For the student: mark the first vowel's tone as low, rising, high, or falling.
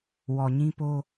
low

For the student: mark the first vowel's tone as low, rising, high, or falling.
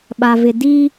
low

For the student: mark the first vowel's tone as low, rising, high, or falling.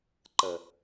low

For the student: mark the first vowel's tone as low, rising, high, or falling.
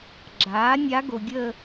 rising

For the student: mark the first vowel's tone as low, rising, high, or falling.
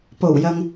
low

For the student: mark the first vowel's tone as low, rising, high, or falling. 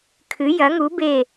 rising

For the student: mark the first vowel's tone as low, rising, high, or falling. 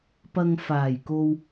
low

